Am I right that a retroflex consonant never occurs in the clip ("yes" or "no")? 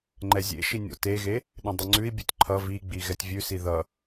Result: yes